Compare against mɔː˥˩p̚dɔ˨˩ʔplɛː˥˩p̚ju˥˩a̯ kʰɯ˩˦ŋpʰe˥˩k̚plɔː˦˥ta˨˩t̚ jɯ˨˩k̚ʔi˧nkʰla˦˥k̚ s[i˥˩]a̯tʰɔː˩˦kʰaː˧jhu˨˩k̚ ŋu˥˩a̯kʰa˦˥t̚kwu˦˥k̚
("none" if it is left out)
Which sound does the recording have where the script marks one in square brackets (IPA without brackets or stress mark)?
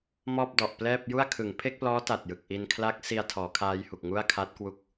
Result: i˧